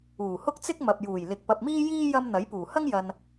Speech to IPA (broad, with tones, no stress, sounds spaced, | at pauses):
uː˨˩ h ʊ˥ k̚ t͡s ɪ˥ k̚ m ɐ˨ p̚ j uː˨˩ j l ɪ˨ k̚ p ɐ˨ p̚ m iː˥ j iː˥ j ɐ˧ m n̪ ɐ˨˥ j p uː˨˩ h ɐ˥ ŋ j ɐ˧ n